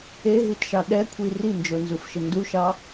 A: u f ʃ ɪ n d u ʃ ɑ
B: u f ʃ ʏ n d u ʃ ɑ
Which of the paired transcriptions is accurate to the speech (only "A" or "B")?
A